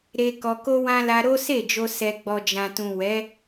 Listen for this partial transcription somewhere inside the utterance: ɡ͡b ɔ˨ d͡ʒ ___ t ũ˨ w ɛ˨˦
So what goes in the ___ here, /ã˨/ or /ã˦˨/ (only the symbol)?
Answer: ã˨